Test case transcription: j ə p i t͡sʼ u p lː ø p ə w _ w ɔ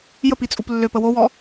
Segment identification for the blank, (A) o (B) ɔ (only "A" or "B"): A